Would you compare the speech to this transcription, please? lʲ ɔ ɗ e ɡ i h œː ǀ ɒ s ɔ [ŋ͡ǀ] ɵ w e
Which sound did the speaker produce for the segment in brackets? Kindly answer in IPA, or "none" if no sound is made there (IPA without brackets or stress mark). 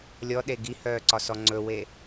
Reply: ŋ͡ǀ